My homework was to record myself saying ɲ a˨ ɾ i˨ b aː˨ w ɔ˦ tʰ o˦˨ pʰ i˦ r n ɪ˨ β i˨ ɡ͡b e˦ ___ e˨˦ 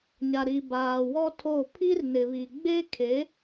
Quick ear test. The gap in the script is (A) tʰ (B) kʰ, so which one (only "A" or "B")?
B